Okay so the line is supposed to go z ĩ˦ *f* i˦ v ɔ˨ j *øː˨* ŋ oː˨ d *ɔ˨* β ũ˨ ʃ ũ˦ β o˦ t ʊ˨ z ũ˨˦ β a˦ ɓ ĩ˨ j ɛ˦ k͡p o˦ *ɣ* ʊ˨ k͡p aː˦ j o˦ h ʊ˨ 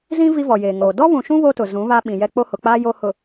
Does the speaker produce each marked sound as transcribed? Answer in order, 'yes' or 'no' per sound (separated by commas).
no, no, no, no